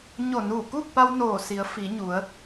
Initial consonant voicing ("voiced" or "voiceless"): voiced